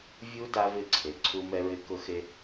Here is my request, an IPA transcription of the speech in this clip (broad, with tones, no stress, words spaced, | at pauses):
vʲu˦ da˦vɪ˦˨ ǀʰe˨ ǀʰu˦mɛ˦ɹɪ˦ kʊ˦xe˦